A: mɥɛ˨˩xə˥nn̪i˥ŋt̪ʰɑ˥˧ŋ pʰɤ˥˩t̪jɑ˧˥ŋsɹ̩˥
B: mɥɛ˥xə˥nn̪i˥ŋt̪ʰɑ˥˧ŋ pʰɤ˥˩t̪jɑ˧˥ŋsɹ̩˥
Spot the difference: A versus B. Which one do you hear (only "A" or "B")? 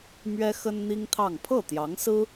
B